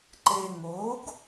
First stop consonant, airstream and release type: click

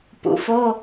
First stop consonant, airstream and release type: plain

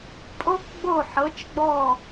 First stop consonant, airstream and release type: ejective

